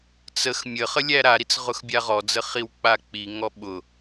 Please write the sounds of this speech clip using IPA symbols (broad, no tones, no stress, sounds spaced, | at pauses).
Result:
t͡s ə x mʲ ə χ ə lʲ æ ɾ a ɾ i t͡s ʁ ʊ x bʲ a ʁ ɔ d͡z ə χ i w k͡p a k͡p i ŋ ɔ ɓ ʊ